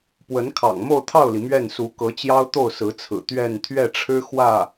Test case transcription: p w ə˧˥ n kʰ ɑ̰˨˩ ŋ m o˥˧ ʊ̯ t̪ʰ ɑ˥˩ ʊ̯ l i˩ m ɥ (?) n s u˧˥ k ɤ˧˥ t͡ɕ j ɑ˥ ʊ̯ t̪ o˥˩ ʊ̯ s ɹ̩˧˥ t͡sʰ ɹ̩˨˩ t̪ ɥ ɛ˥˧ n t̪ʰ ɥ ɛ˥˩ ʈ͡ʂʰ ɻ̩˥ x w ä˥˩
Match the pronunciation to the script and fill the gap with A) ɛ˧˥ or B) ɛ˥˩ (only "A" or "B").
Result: B